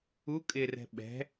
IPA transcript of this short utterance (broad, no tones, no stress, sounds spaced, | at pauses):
u kʼ ɪ r ɛ̤ ɓ ɛ̤